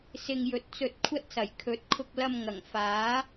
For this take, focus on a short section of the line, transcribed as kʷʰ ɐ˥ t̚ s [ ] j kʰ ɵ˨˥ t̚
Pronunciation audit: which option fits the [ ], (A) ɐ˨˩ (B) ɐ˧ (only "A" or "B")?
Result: A